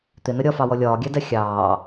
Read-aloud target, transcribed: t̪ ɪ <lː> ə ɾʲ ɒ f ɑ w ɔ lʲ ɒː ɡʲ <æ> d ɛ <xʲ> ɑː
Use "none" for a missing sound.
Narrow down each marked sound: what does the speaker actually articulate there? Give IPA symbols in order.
n, æ, xʲ

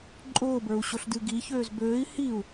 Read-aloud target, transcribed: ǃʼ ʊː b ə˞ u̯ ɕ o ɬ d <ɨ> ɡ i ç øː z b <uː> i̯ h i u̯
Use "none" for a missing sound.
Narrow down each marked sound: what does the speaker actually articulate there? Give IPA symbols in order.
ɨ, øː

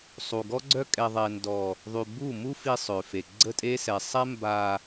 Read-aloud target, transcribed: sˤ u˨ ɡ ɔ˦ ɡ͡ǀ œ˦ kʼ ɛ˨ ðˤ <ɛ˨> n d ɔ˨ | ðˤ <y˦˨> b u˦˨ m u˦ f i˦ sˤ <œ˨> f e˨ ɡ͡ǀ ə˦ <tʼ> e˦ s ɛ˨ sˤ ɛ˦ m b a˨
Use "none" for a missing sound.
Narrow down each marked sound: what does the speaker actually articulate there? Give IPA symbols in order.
ɛ˨, y˨, ø˨, tʼ

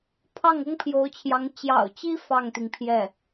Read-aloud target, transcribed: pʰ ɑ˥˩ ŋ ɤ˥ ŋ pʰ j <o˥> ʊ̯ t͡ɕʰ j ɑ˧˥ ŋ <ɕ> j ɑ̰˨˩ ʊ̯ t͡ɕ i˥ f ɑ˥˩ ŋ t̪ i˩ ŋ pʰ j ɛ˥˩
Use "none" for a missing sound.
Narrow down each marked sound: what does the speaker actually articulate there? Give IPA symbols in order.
o˧˥, t͡ɕ

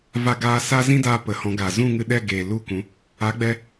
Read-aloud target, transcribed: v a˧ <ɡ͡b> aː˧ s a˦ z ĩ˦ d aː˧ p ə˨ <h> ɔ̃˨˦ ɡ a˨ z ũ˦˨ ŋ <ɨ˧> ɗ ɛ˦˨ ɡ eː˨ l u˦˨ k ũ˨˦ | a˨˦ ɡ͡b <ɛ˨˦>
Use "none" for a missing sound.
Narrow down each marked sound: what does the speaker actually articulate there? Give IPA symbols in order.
ɡ, h, ɨ˧, ɛ˧

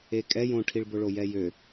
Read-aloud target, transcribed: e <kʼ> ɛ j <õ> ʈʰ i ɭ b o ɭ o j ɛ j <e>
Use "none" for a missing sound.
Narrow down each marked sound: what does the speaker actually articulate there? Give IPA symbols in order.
kʼ, õ, ø

